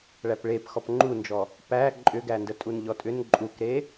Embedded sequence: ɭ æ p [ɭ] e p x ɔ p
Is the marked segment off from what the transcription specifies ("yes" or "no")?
no